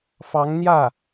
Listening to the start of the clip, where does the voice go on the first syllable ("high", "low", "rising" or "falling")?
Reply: rising